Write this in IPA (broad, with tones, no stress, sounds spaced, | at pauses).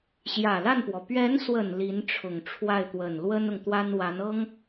ɕ j ä˨˩ l a˥˩ n p w ɔ˩ p ɥ ɛ˧˥ n s w ə˨˩ n l i˧˥ n ʈ͡ʂʰ ʊ˨˩ ŋ ʈ͡ʂʰ w a˥˩ ɪ̯ t̪ w ə˨˩ n l w ə˥ n ʊ˨ ŋ t̪ w a˥ n w a˧˥ n ɤ˥ ŋ